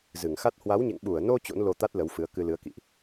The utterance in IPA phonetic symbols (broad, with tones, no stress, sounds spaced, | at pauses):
z ɨ˧˩ ŋ x a˦˥ t̚ h w a˨˦ w ɲ ḛ˧˨ ŋ ɓ u˧˩ ə̯ n o˧ t͡ɕ o̰˧˥ n l o˧ t̪ a˦˥ t̚ l ə˨˦ w f ɨ˨˦ ə̯ k ɨ˧ l ɨ˨˦ ə̯ k ḭ˧˨ ʔ